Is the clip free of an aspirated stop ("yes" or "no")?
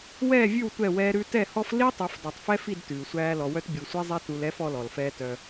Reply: yes